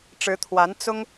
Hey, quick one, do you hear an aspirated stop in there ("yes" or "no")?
yes